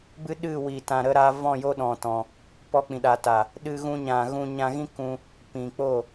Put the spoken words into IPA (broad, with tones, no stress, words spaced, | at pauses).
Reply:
bɨ˦ɗɨ˦˨wi˨ tã˨ɾə˧ɾa˧vɔ̃˦˨ jo˦ɗɔ̃˨tɔ̃˨ | pɔ˧k͡pĩ˨ɗa˨ ta˨ | ɗɨ˧ɣũ˧ɲã˨ ɣũ˧ɲã˧ɣĩ˦ kũ˧ | pĩ˨k͡po˦˨